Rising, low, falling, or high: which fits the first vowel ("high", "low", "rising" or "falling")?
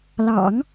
low